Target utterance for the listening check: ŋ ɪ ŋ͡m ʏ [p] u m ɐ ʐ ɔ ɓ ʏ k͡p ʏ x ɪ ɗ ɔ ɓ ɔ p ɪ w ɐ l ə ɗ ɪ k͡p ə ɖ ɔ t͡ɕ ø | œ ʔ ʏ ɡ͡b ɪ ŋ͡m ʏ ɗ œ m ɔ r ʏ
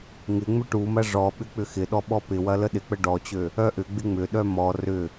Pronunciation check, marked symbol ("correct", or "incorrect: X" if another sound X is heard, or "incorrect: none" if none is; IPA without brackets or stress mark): incorrect: ʈ